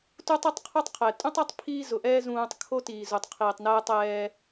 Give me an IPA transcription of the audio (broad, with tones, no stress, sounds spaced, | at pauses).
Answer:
t u˦ tˤ i˦ tˤ qʰ u˦ tˤ qʰ ɛ˨ tʼ ũ˦ tˤ a˦ tˤ pʰ iː˦ z ʊ˨ ʔ ɛː˦ z ũː˨ tˤ kʰ o˦ t iː˨ z u˨ tˤ qʰ iː˨ tˤ n ɛː˦ tˤ ɛː˦